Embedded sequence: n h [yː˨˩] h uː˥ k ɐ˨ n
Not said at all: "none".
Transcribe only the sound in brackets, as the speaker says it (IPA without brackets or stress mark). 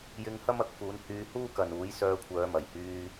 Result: yː˧